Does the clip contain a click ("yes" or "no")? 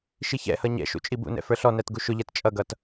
no